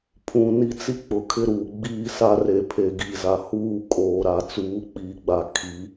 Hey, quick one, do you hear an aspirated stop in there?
yes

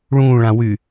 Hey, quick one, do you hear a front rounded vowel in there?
yes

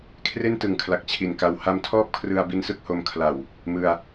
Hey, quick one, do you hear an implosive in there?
no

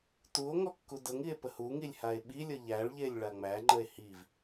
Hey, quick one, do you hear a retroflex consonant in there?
yes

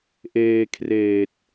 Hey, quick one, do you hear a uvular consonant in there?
no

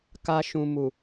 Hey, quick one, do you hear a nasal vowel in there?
yes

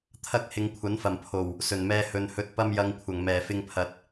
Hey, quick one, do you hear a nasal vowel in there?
no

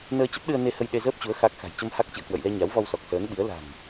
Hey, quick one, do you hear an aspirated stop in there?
no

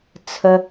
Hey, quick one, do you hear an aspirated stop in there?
yes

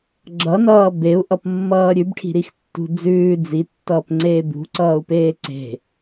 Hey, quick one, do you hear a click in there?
yes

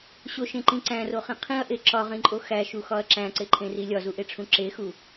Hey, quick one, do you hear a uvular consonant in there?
yes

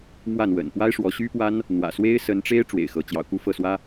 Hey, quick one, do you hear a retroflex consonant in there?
yes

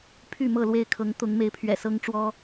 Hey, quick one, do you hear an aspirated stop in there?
yes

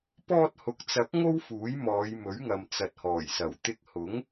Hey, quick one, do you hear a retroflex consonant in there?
no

